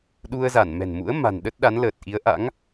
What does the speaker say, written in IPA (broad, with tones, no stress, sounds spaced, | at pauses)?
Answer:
ɗ u˧ ə̯ z a˧˩ n m ɛ̤˨˩ n m ṵ˧˥ ə̯ m a̤˨˩ n ɗ ə˦˥ t̚ ɗ a˨˦ n l əː˨˩ t̚ ʔ i˨˦ ə̯ ʔ a̰˧˥ ŋ